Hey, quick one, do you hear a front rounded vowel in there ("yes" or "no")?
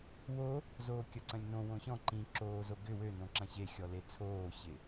yes